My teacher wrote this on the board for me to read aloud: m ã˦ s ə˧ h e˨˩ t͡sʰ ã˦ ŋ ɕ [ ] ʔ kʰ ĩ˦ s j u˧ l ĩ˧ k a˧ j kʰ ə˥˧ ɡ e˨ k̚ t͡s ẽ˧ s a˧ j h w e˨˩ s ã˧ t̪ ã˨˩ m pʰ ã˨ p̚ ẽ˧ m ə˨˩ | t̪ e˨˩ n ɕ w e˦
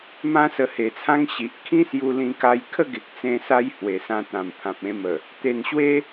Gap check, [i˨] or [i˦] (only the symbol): i˨